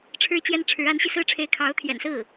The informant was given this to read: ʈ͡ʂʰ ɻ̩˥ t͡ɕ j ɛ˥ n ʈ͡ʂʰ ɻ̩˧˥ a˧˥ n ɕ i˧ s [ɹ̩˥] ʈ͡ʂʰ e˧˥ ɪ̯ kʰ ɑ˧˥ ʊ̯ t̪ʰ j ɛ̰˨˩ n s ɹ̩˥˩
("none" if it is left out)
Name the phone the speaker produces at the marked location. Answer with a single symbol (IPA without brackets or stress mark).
ɹ̩˥